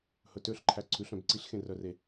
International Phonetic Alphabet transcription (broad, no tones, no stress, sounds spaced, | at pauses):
h ɵ t ø ɬ ǃʰ æ ǀʰ ʉ ɬ œ̃ b ǀ i ɬ x ẽ r œ r e